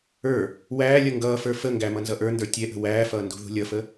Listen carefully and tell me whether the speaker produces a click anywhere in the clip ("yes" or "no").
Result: no